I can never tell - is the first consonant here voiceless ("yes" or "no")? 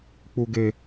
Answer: yes